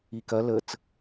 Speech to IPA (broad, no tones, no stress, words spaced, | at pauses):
ikɐ lət͡s